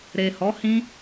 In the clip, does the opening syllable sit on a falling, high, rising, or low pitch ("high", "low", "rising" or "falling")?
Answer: low